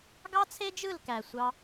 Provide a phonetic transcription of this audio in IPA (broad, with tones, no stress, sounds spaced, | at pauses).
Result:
ɡ ɑ˦ t͡sʰ e˦ d͡ʒ ɯ˦˨ l k æ˨ sʷ ɑ˧